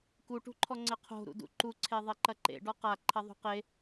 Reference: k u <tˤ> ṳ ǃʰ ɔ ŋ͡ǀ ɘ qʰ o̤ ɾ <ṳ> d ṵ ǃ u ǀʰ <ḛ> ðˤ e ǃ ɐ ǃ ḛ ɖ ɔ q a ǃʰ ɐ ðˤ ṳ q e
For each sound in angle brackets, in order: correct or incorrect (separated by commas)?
incorrect, incorrect, incorrect